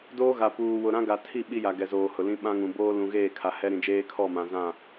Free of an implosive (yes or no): no